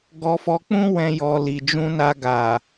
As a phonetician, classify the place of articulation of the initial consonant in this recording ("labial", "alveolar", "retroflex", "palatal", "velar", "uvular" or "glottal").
velar